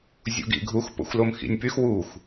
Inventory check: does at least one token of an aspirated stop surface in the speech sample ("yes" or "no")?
no